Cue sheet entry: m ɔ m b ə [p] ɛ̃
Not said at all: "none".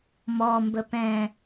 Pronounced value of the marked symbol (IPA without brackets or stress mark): p